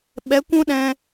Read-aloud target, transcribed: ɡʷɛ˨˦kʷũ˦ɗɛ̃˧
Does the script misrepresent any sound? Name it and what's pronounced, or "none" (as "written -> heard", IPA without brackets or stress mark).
ɡʷ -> ɓ